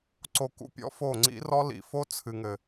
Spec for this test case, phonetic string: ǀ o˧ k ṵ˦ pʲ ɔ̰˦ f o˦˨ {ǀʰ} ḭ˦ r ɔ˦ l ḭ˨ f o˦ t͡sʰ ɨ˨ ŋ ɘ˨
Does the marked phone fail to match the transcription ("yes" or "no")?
yes